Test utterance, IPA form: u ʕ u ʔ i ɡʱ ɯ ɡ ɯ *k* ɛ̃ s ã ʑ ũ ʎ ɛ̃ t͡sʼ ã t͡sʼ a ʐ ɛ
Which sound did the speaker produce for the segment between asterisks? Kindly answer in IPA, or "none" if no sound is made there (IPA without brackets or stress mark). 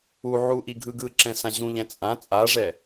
ǁ